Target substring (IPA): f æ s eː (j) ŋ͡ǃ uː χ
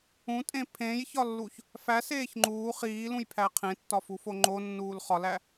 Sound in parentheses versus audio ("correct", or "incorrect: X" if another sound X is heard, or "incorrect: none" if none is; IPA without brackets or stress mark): incorrect: ç